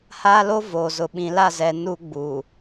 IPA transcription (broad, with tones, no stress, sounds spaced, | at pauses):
h aː˦ l o˦ v oː˨ z ʊ˨ ɓ ĩ˨ l a˦˨ z ɛ˨ n u˦ ɡ͡b uː˨